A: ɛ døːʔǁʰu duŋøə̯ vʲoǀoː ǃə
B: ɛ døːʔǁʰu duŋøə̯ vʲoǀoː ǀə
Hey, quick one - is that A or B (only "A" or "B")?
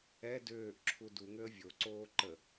A